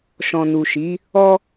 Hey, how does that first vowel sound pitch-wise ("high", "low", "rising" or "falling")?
low